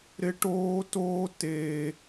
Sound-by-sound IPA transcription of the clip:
ɾɪ˦ʈoː˦toː˦ te˦

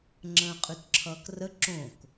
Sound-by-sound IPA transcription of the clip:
ŋ͡ǁə̃ːqʼytǁʰʌːkrə ǁõk

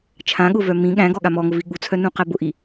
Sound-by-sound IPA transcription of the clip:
t͡ʃʰãɠʊvœ mĩ ɠæ̃ɡɔɠa mɔŋʊvi ɠut͡sʰœnũqæ bʊʔi

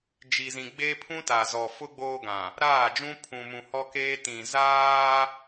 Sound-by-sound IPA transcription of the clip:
d͡ʒi˨zĩ˨ɡ͡beː˦ pʰũ˦ta˨zɔ˨ fʊ˦ ɡ͡boː˦ɡã˨ | ɾaː˦˨d͡ʒũ˦ pʰũ˨mũ˨ hɔ˦keː˦ tĩ˨zaː˦

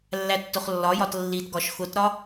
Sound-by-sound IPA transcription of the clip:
lːætːʊχlːɒjɒt lːitɡɒʃ xʊtɾɒ

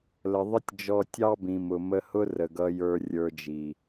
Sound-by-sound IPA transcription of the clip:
lə˨ ðˤə˦tʲd͡ʒɔ˧ tʲɑ˦bĩ˨mʊ˨ mə˧hʊ˦ rə˨ɡʌ˧ jə˞˧rʲə˞˧d͡ʒi˨

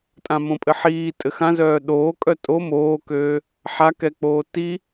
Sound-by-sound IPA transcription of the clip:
tʼãmõpʼɘħiː tʼɘxãzœː ɗoːkʼœ tʼo moːkøː | ħakɛk͡poː ti

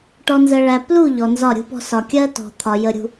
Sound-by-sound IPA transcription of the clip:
ʈɔ˨nzɜ˨ɭæ˨ plu˦˨ ʎɔ˨nzɒ˦˨ɾʲṳ˦pɔ̤˦ sɒ˨kʲɜ˦ tɔ̤˨ t̪ʰɒ˨jə˨ɾʲṳ˨

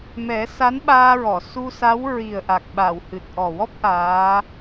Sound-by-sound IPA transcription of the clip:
mɛ˨˩˦sa˧˥nɓaː˧ɹɔ˨˩˨ su˧sa˧˥w ɹi˨˩ə̯ʔa˨˩k̚ɓa˨˩˨w hɨ˨˩t̚ʔɔ˨˩ wɔ˦˥p̚ ʔaː˧˥

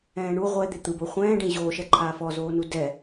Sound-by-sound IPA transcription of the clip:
ɛ̃ːɳu ʁʷɛd̪e t̪ɯbo χʷɛ̃ːɖẽ ʑoːʃɛǃʰaː fɔzoːnu dɛ

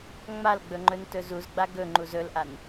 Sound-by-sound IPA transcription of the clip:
ŋ͡malɡ͡bɵŋ͡ǃɵn tɵzuzɡ͡ba ɡɵŋ͡ǃuz ɵlʔan

